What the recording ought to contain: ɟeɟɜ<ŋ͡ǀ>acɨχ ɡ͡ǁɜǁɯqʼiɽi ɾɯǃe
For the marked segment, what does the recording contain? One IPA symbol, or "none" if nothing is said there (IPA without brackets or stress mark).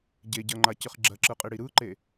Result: ŋ͡ǃ